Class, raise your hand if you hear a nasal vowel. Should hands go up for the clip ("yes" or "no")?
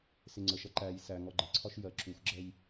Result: no